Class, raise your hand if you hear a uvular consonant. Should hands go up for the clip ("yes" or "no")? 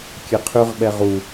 yes